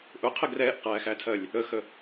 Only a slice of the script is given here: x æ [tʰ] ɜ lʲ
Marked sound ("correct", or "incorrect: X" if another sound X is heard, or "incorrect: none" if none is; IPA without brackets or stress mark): correct